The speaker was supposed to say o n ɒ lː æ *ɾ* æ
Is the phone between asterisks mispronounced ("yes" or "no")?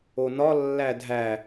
yes